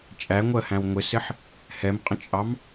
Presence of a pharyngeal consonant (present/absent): present